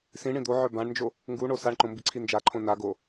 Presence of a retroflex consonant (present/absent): present